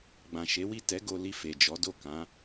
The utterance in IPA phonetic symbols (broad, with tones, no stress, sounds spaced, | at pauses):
ɡ͡b ã˨ ʃ e˨˦ w i˦˨ t ɛ˨˦ ɡ o˧ l i˧ f e˨ d͡ʒ ɔ˨˦ d o˦˨ k ã˨˦